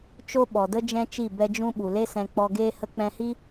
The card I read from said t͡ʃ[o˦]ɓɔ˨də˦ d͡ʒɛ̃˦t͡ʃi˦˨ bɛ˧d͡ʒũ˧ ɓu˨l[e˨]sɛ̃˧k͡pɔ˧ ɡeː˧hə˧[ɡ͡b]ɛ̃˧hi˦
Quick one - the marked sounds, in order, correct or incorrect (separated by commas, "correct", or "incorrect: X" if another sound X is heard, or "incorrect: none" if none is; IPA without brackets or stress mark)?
correct, incorrect: e˦, incorrect: k͡p